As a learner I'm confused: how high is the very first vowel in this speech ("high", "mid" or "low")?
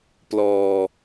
mid